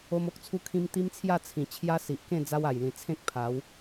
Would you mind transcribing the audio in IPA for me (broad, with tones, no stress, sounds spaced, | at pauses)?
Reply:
o˦ m o˦ k̚ t͡sʰ u˦ kʰ ĩ˦ m t̪ i˦ m t͡sʰ j a˥˧ t͡sʰ ĩ˨˩ t͡ɕʰ j a˦ s i˨ ʔ k ẽ˥˧ d͡z a˦ w a˨˩ j l ĩ˨˩ t͡sʰ ẽ˦ k̚ pʰ a˨˦ w